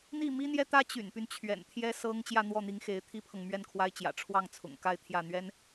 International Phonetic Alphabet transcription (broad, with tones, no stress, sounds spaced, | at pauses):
n̪ i˥˩ m i˥ n̪ j ɛ˥ t̪ ä˥ t͡ɕ y̰˨˩ n p y˦ n t͡ɕʰ ɥ ɛ̰˨˩ n t̪ʰ j ɛ˥ s ɤ˥ ŋ t͡ɕ j ä˥˧ n̪ w ɔ˥˩ n̪ i˧˥ ŋ x e˧˥ ɪ̯ t̪ʰ i˥ pʰ ɤ˨ ŋ m ɥ ɛ˥˩ n kʰ w a˥ ɪ̯ t͡ɕ j ä̰˨˩ ʈ͡ʂʰ w ɑ˥˩ ŋ t͡sʰ ʊ̰˨˩ ŋ k a˥˧ ɪ̯ t̪ʰ j ä˥˩ n̪ ɥ ɛ˥ n